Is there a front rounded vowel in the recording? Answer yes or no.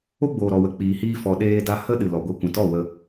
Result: no